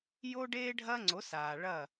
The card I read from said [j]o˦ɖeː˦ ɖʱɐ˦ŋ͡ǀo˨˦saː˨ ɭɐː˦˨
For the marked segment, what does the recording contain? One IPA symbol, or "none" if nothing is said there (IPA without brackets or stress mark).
j